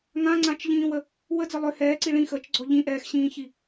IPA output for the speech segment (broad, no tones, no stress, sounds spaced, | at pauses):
ŋ ã ŋ͡ǀ ã t͡ʃ ʎ ĩː w ə | w ə d͡z ə lˠ ʏ h ɛː ǀ i ɭ ĩ x əː t͡ʃ ɡ͡ǀ ɔ ʎ ĩ ʔ ɛː x ɕ ĩː ç i